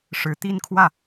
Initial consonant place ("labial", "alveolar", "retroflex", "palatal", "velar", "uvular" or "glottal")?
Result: retroflex